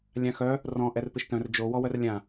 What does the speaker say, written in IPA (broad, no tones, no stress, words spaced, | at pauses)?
lʲãxœ | rɔ̃ ʔɛrpɪʃtœ̃r d͡ʒo wɔwœrlʲã